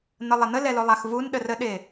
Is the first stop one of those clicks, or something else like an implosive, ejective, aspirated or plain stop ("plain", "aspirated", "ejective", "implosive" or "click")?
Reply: implosive